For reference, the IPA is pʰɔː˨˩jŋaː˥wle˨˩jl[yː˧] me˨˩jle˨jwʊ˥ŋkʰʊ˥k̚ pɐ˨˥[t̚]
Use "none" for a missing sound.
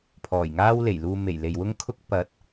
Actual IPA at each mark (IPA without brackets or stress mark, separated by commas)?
uː˧, t̚